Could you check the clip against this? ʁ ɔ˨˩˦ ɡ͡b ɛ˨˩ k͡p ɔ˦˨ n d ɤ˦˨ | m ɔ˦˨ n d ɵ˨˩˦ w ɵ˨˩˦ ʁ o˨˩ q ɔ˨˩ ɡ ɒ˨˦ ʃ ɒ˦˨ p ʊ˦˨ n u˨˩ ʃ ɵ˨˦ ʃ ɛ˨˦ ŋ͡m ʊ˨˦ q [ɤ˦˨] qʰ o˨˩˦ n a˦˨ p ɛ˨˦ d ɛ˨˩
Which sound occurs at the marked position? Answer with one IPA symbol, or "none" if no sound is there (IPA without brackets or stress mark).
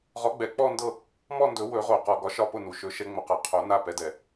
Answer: ɤ˨˩